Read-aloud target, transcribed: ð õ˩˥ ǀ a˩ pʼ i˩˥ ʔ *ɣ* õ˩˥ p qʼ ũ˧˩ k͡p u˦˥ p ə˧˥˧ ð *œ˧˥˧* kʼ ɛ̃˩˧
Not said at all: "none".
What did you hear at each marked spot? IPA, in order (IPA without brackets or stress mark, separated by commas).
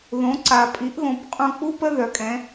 ɣ, œ˩˧